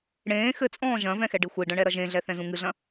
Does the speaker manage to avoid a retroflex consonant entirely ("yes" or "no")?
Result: no